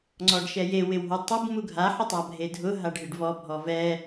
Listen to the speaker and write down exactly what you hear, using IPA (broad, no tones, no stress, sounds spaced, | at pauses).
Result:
ŋ͡ǀ ɔ ɖ ʃ ɛ j e w ɪ w ɦ o tˤ ʊ b m u ɡʱ a ħ ʊ tˤ a bʱ e dʱ ʊ ɦ a ɖ ɦ ɪ ɖ v ɔ bʱ ɔ v ɛ